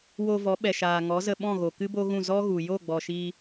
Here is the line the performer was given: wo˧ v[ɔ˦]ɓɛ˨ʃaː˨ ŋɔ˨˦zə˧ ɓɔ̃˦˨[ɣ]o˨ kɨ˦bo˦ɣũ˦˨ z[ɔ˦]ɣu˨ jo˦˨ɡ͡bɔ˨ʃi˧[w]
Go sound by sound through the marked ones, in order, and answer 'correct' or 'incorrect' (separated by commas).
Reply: incorrect, correct, correct, incorrect